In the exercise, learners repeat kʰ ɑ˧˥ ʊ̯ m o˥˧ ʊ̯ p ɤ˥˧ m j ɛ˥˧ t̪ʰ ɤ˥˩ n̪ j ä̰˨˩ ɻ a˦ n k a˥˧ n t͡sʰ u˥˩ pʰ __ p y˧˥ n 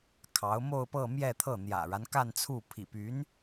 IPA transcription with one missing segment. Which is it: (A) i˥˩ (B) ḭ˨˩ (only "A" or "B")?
B